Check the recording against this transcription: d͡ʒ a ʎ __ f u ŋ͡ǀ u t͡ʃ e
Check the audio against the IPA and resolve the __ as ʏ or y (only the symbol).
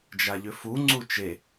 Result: ʏ